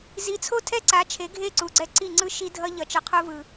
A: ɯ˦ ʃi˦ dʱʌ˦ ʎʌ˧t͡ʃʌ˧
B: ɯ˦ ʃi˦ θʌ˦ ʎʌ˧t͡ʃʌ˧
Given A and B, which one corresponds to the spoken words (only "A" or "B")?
A